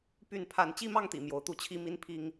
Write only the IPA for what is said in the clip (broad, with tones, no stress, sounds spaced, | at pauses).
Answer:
p y˥˨ n pʰ a˥˨ n t͡ɕ i˥˨ m ɑ˥˨ ŋ t̪ ḭ˨˩ m j o˨˦ ʊ̯ t̪ u˦ t͡ɕʰ i˦ m i˦ n pʰ i˦ ŋ